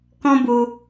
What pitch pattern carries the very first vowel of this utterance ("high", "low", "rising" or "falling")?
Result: high